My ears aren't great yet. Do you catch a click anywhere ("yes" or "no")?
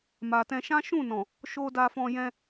no